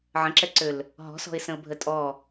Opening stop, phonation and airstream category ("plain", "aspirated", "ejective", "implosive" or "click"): click